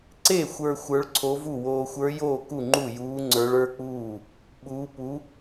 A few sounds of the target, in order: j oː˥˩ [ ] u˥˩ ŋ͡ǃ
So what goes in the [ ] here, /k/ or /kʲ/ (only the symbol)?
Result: k